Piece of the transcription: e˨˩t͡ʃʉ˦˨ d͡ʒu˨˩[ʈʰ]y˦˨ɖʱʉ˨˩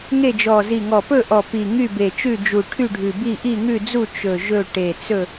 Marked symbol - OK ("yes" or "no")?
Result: yes